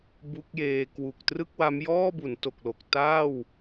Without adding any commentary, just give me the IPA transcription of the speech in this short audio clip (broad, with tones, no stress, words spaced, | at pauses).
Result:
bu˦˥k̚jeː˧ kwu˨˩k̚trɯ˥˩k̚wa˦˥m jɔː˥˩bu˩˦nto˨˩k̚lo˨˩k̚ taː˥˩w